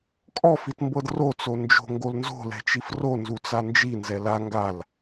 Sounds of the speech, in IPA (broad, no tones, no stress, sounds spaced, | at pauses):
kʼ ɔ f i t m b ɤ d r o t͡s o n d͡ʒ o̤ ŋ ɡ o l n z o̤ l ɛ̤ t͡ʃ i f r o n z u t͡s a n d͡ʒ i n z ɛ l a ŋ ɡ a l